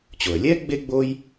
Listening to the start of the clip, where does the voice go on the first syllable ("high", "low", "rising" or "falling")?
low